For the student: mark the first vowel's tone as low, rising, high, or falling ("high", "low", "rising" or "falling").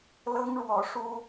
high